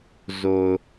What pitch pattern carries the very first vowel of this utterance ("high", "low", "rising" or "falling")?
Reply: low